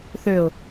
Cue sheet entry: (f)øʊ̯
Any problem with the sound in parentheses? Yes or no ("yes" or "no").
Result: yes